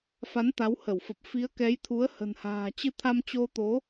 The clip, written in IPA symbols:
f a˨˦ n t̪ a˨˦ w h ə˧˩ w f ə˨˩ p̚ f i˨˦ ə̯ k ɛ˨˦ j t̪ʰ u˨˦ ə̯ h ə̤˨˩ n h a̤ː˨˩ t͡ɕ ɨ˧ t̪ʰ a˧ m t͡ɕ o˧ t̪ o˨˦

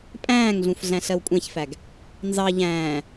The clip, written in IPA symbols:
pʼ æ̃ː ŋ ɮ ũ f ɮ æ̃ ɬ ɜ w kʷʼ æ̃ ç f æ ɡ | n z ɑ ʎ æ̃ː

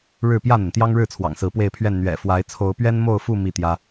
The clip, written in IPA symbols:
ɻ ɻ̩˥˨ p j ä˥˨ n̪ ə˩ n t̪ j ɑ˦ ŋ ɻ ɻ̩˥˨ t͡sʰ w ɑ̰˨˩ ŋ s ɹ̩˨˦ p w e˥˨ ɪ̯ pʰ ɥ ɛ˥˨ n n̪ ɥ ɛ̰˨˩ f w a˨˦ ɪ̯ t͡sʰ o˨˦ ʊ̯ p ɥ ɛ˦ n m o˥˨ ʊ̯ f u˥˨ m i˥˨ t̪ j ä˦

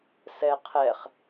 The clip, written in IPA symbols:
s ɛ qʰ ɛ χ

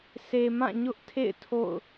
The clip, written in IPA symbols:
s e˨ m ã˦˨ ɲ ʊ˦ ʔ tʰ ḛ˦˨ ɪ̯ tʰ o̰˦˨ ʊ̯

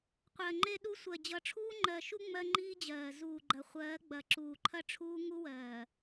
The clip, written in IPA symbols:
qʷ ɜ˨ ŋ͡ǃ e˦ ɗ u˦ sʷ ɜ˨ d͡ʑ ʌ˨˦ ʈ͡ʂʰ uː˦ ŋ͡ǃ ɜ˨ ʃ u˦ ŋ͡m ɜ˦ ŋ͡ǃ iː˦ d͡ʑ ɜː˨ z uː˨ ɡ͡ǃ ɐ˨ χʷ ɜː˨˦ ɡ͡b ɐ˨ ǁ uː˨ ǃʰ ɐ˦ ʈ͡ʂʰ uː˦ ŋ u˦ w ɜː˨

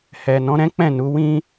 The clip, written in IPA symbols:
h ɛ˨ n ɔ̃˨˦ ɾ ɛ̃˦ k͡p ɛ̃˦˨ n u˨˦ w ĩ˦

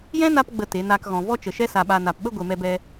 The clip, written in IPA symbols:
j ɛ̃˦ n a˧ p ɡ͡b ə˨ t e˨˦ n aː˦ k ɣ ɔ̃˧ v ɔ˦ t͡ʃ ə˨ ʃ ɛ˦ s a˨ ɓ a˨ n a˨ p ɓ ə˦ ɡʷ e˨ m ɛ˧ b ɛ˧

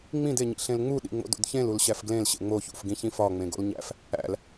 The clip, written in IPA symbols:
ŋ͡m ĩ d e ɲ ḭ ɬ ẽ l ŋ͡m u ɗ ḭ ŋ͡m o̰ d o̰ d ç ẽ l u l ɕ æ f ɡ l ẽ l ɕ ḛ ŋ͡m o ç ṵ f ɡ ĩ ç ĩ f ɒ ŋ͡m ẽ ɡ o̰ l ɲ æ̰ f | æ̰ l

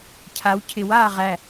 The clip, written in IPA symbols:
cʰ a w cʰ ɪ w aː ʁ æ

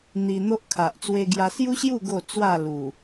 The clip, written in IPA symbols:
n̪ i˧ n̪ o˦ ʔ kʰ a˨ ʔ t͡s w e˧ ɡ j a˧ s j u˦ ɕ j u˥˧ ɡ o˥˧ t͡s w a˥˧ l u˨˩

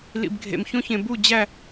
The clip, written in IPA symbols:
l ḭ˨ b ɡʱ ḛ˨ m ç õ˦ ç ẽ˨ b u˦˨ d͡ʑ æ˦˨

